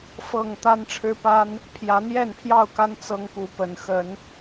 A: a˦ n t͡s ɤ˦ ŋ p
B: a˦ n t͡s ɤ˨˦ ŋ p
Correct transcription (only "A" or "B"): A